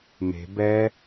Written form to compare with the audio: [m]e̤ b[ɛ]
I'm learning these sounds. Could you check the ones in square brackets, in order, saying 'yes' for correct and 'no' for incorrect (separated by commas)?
yes, yes